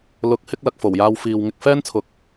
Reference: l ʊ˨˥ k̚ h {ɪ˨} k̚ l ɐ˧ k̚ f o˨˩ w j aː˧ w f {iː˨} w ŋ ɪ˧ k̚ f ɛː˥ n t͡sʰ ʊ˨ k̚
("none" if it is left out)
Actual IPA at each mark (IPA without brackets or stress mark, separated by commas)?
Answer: ɪ˥, iː˨